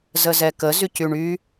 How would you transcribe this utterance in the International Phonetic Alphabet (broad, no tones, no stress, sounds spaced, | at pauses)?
z ə z ɛ k ə z y c y ɳ y